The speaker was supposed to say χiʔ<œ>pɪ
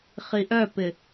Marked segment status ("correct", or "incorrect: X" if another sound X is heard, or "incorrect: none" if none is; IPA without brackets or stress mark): correct